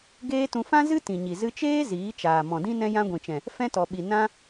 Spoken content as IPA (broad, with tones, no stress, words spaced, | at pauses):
ɡeː˦tũ˧ fã˦zɨ˦ tĩ˨ɲi˨ zɨ˧t͡ʃeː˦ ziː˨˦t͡ʃaː˨ mɔ̃˨dĩ˦ nɛ̃˧jã˧ ɡʷĩ˨t͡ʃɛ̃˨ | fɛ̃˦tɔ˨ɓi˨ nã˦